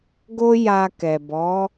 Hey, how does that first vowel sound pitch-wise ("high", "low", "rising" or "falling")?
high